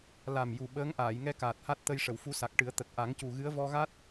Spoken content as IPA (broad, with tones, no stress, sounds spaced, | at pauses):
l a˨˩ m j u˨˩ ɓ əː˧˥ ŋ ʔ aː˨˩˨ j ŋ ɛ˧ k aː˨˩ t̚ h a˦˥ t̚ t̪ ə˧ j ʂ ə˨˩˨ w f u˧˥ s a˨˩ k̚ ʈ ɨ˨˩˦ ə̯ t̪ ə˨˩ k̚ ʔ a˨˩˦ ŋ c u˨˩ ɣ ɨ˧˥ ə̯ v ɔ˧ ɣ a˦˥ t̚